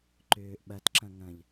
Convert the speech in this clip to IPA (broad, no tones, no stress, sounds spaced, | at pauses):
ǃ ʏː ʔ ɓ ɐ t ǁ ɐ̃ ŋ ɐ̃ ʎ